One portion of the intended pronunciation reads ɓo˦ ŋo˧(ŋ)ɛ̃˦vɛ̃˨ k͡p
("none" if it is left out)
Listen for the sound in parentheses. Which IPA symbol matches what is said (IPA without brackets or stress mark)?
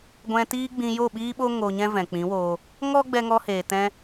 ɲ